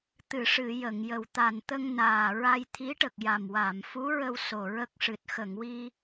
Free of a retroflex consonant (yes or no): no